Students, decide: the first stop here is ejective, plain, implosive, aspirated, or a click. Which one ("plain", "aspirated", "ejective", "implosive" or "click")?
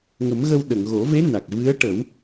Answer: implosive